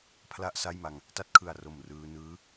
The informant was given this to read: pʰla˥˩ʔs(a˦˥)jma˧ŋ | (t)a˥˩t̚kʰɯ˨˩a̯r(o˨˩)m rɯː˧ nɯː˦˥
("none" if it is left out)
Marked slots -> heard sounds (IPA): a˥˩, t, o˨˩

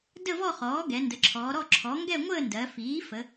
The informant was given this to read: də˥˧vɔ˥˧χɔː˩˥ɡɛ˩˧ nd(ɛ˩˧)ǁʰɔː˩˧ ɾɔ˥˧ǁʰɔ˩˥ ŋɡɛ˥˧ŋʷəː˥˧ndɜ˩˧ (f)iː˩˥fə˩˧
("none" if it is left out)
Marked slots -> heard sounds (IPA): ə˩˧, f

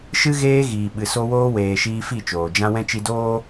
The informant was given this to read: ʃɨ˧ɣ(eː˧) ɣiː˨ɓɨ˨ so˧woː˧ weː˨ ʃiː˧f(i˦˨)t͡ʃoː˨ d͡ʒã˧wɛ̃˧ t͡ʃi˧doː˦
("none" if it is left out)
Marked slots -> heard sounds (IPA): eː˧, i˦˨

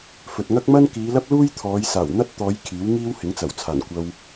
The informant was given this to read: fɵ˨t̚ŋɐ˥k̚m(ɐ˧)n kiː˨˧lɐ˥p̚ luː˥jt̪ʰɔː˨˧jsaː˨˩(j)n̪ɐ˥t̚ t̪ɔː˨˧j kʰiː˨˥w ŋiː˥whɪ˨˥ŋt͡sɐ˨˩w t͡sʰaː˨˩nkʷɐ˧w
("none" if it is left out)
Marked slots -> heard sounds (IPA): ɐ˥, w

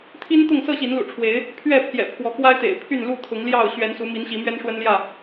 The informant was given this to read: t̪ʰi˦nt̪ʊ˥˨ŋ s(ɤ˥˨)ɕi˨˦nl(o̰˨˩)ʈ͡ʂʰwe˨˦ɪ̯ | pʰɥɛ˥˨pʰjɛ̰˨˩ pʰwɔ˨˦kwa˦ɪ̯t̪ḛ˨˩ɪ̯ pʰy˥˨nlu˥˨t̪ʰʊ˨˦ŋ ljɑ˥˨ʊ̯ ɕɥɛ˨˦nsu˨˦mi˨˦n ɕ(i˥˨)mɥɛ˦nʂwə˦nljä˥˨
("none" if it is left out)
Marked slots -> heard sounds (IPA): ɤ˥˨, ṵ˨˩, i˨˦

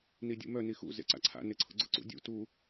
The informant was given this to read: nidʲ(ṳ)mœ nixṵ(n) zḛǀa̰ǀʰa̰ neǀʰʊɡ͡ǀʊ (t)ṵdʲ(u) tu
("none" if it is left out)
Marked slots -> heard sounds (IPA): ṵ, none, ǀ, ṵ

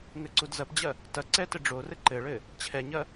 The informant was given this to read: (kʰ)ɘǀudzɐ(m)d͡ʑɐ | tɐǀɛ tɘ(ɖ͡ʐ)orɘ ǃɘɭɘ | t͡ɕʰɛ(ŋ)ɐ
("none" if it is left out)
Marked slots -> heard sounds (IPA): ŋ, p, ɖ͡ʐ, ɲ

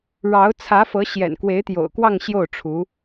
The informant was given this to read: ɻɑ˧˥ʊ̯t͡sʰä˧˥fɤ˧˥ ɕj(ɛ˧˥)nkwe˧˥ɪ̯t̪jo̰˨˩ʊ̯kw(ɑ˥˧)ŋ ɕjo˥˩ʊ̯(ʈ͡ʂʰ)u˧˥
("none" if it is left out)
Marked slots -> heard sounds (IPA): ɛ̰˨˩, ɑ˥˧, ʈ͡ʂʰ

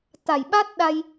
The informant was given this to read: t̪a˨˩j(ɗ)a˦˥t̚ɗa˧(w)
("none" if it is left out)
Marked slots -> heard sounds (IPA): ɓ, j

